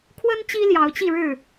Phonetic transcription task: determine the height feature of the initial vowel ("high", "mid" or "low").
mid